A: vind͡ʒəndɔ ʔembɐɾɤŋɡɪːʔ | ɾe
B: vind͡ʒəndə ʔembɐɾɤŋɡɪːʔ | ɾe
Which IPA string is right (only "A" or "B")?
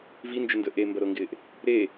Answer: B